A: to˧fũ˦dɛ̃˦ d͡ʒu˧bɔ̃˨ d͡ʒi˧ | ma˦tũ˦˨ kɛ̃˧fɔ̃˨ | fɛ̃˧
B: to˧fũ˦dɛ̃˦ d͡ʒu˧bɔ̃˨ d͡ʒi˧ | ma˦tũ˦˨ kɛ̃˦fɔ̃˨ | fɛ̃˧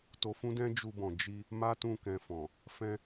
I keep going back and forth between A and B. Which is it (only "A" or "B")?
A